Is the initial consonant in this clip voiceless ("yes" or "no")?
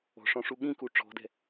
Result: yes